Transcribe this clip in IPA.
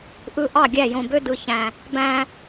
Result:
ʔ ɯ˧ ʔ ɑ˦˨ ɡʲ æ˦˨ j õ˧ b ø˦ d ɯ˧ ç æ̃˧ | b æ̃˧

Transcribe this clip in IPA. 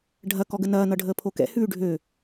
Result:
ɖʱ ɐ k ɔ ɡ ə n ɐː n ʌ ɖʱ əː pʰ o k ɛ̰ h ʉː ɖʱ ø

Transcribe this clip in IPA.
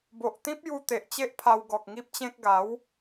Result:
b o˨ ʔ t̪ ĩ˦ p̚ j u˧ t̪ e˨ ʔ t͡ɕ e˦ ʔ pʰ a˧ w ɡ ɔ˨ k̚ ŋ i˦ p̚ t͡ɕ ẽ˦ k̚ ɡ a˨˦ w

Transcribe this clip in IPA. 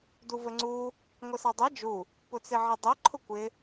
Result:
d u v ə ŋ͡ǀ u | ŋʷ ə s ɑ dˤ ɛ d͡ʒ u | p ʊ t͡s ɪ ʕ ə dˤ ə ǃʰ ʊ kʷ ɪ

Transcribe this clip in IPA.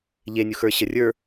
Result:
ʎ e nʲ u x ə˞ ɕ ə rʲ ə˞

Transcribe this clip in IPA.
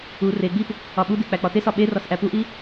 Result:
u r e ɡ͡b i p | ɒ ɓ u d i k͡p æ k͡p ɒ t e s ɒ ɓ e r ɒ s ʔ æ p u ʔ i

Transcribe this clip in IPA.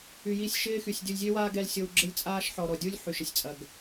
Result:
y˨ j i˦˨ sʲ ʃ ɪː˦ x y˨ sʲ dʲ u˨ lʲ zʲ ø˦ w aː˦ ɡ ɛ˦ l sʲ o˦ w ɡ͡ǁ ɪ˦ lʲ t͡sʼ aː˦ ʃ ħ ɔ˨ ɾ ɔ˨ dʲ u˦ lʲ ħ y˨ ʃ ɪ˨ sʲ t͡sʼ ɐ˨ ɡ

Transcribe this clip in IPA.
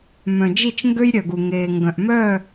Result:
m œ̃˨ d͡ʒ i˦˨ t͡ʃ ŋ ɡ ø˦ j ɾʲ œ˨ ɡ u˨ ŋ eː˨ ŋ ɡ œ̃˨ ʔ m œ˦˨

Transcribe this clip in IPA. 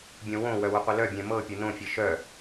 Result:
bʲ õ w õ w œ w ʊ qʷ ɘ l œ bʲ ɛ̃ m ɤ pʲ ɤ n õ fʲ ɘ ʃ œ

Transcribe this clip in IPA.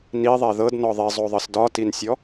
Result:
n i ðˤ ɛ ð ɤ d n ɔ ðˤ i zˤ o ðˤ ɤ s d ɒ t i n sʲ ɔ

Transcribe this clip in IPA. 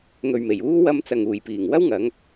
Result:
ŋ ɵ˨ ɥ m e˨˩ j uː˥ w ɐ˧ m t͡s ɐ˨ ŋ uː˨˩ j p iː˨˩ ŋ w ɐ˥ w ŋ ɐ˨˧ ŋ

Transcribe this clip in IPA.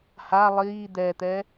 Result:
h a lˠ iː d̪ ɛː t̪ ɛː

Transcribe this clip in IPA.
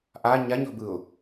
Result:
ʔ a ɲ a ɲ ɔ̤ b ɯ ʊ̯

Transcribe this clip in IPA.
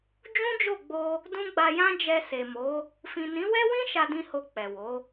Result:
d͡ʒ ũ˦ d͡ʒ o˦˨ ɡ͡b o˧ | d ũ˦ ɡ͡b a˧ j ã˦ d͡ʒ ɛ˧ s e˨ m o˨˦ | f ĩ˨ n ĩ˨˦ w ɛ˦ w ĩ˦ ʃ a˧ d ĩ˧ h o˧ k͡p ɛ˨ w o˨˦

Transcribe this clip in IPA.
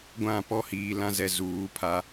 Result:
ɡʷ ã˦˨ p ɔ˦ h iː˨ l ã˦ z ɛ˨ z uː˨˦ pʰ a˦

